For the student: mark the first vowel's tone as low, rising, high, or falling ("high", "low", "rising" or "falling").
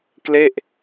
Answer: falling